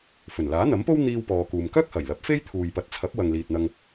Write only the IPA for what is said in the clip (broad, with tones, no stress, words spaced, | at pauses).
fɵ˨˩nlaː˨˥n̪ɐ˨˥mpo˥w n̪iː˥wpɔː˧kuː˧m kœː˥k̚hɐ˨˩jlɐ˨˥p̚ fe˥jt̪ʰuː˨jpɐ˨t̚t͡sʰɐ˨˥p̚ wɐ˨ŋliː˨t̚n̪ɐ˧ŋ